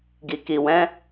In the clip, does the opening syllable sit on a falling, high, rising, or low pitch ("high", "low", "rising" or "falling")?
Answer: low